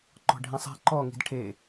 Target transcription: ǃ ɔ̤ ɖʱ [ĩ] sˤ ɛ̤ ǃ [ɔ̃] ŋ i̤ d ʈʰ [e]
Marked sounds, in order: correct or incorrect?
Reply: correct, incorrect: ɔ, correct

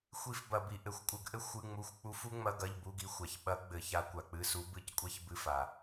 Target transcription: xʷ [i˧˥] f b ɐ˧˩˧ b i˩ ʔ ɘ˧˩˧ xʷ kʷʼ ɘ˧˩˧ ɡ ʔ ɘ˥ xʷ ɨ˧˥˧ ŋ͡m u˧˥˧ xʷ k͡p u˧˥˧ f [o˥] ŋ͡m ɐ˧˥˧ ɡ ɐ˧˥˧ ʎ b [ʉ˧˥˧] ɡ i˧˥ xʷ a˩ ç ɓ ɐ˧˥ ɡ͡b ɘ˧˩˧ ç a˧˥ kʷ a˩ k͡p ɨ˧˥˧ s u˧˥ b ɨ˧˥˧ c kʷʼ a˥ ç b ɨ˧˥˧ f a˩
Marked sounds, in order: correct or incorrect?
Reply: correct, incorrect: u˥, incorrect: u˧˥˧

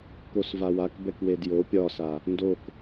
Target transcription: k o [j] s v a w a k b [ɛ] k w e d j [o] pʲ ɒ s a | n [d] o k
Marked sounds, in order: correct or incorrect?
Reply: incorrect: none, correct, correct, correct

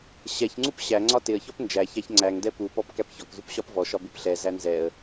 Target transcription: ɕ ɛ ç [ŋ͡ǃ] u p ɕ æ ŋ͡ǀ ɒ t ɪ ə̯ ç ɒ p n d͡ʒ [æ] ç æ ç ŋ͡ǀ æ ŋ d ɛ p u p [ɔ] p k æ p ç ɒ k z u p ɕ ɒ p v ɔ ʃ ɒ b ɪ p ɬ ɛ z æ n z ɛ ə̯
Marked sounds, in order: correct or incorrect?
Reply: incorrect: ŋ͡ǀ, correct, correct

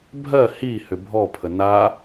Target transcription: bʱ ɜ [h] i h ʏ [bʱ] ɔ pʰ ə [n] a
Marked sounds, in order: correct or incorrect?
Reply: correct, correct, correct

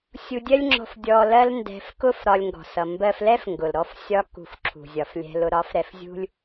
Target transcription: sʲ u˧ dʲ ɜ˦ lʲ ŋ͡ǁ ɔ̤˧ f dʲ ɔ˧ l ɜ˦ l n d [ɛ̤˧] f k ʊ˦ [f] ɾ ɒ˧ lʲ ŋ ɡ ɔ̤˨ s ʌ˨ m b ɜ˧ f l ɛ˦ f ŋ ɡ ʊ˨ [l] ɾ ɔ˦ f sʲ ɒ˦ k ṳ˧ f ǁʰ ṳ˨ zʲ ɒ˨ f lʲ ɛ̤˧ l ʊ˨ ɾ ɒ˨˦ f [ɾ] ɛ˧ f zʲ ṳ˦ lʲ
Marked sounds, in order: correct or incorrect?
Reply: correct, correct, correct, correct

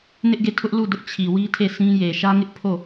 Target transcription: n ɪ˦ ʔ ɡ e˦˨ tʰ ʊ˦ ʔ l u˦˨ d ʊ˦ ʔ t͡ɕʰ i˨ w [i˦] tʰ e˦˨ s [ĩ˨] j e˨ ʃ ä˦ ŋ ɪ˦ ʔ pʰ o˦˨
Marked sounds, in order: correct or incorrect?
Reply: correct, incorrect: ĩ˦

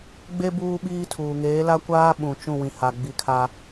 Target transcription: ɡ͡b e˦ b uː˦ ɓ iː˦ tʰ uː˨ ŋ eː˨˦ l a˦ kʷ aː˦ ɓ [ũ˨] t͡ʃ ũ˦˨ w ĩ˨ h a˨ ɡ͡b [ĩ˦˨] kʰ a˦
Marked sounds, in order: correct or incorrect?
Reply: correct, incorrect: i˦˨

